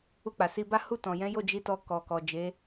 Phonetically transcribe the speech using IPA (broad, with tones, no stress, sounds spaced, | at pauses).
u˧ k͡p a˨ s i˧ b a˦ h u˦˨ t ɔ̃˨ j ɛ̃˨˦ j o˦˨ d͡ʒ i˨˦ t ɔ˧ k ɔ˨ k ɔ˨ d͡ʒ e˨˦